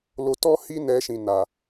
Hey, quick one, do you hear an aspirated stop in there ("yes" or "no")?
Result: no